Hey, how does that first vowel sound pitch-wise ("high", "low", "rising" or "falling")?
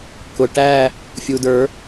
low